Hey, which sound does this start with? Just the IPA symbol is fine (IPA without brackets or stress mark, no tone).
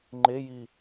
ŋ͡ǃ